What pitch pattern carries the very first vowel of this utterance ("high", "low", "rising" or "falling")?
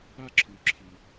high